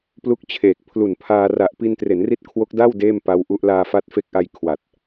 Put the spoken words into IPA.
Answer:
p l u˦˥ k̚ t͡ɕʰ eː˨˩ k̚ pʰ l u˨˩ n pʰ aː˧ r a˨˩ ʔ p i˧ n t r e˩˦ n r i˦˥ t̚ kʰ w o˦˥ k̚ d a˥˩ w d eː˥˩ m p a˦˥ w ʔ u˦˥ ʔ l aː˧ f a˦˥ t̚ f e˦˥ k̚ ʔ a˧ j kʰ w a˨˩ t̚

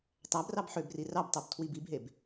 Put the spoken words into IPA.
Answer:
tˤ æ b r ɑ b ħ ø b r i r ɑ b tˤ o b tʰ w i b i b ɦ e b

